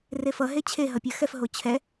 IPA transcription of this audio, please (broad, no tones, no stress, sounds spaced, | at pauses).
r e f ʌ ɦ e t͡ɕʰ e ɦ ʌ pʲ ɜ x ɛ f ɦ o t͡ɕʰ ɛ